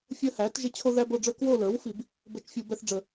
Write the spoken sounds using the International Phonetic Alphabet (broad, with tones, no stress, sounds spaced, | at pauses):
fʲ əː˦ h æː˩˥ t ʒ ɪ˦˨ t͡ɕʰ o˦ ð æ˦ b o˦˨ ɖ͡ʐ ə˞˦ k w o˦˨ l ə˞˩˥ w f i˧˩˧ b | b əː˦˨ t͡ʃ fʲ u˧˩˧ b ɛ˦ θ ɖ͡ʐ ə˧˩˧